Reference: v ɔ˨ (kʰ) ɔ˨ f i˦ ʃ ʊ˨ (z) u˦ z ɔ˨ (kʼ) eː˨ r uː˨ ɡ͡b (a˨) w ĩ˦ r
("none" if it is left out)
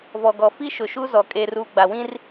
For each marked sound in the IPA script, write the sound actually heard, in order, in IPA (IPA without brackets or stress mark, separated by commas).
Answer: ɡ, ʃ, kʼ, a˨